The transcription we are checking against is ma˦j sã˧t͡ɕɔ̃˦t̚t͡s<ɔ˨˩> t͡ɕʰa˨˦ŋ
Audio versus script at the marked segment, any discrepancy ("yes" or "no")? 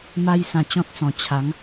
yes